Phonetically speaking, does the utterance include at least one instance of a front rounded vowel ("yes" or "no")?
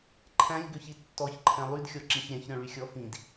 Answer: yes